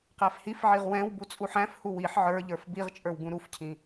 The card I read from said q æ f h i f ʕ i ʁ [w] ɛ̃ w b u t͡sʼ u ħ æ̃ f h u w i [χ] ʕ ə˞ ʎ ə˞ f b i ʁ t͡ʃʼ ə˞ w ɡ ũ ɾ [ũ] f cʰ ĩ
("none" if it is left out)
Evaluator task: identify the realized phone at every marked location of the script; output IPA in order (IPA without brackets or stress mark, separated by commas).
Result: w, ħ, u